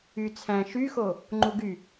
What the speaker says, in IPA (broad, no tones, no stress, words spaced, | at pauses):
y t͡sʰæ̃ ʃyxo | ŋ͡ǃuɡy